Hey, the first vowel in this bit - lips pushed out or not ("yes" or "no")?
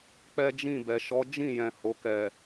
no